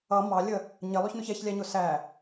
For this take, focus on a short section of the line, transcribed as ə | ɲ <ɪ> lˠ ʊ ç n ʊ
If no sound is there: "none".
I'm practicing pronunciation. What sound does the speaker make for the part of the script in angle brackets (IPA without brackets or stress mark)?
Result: ɪ